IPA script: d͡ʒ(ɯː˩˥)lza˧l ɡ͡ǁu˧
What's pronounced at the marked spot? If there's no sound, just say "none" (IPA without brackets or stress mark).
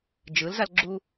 ɯ˩˥